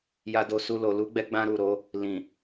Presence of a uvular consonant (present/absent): absent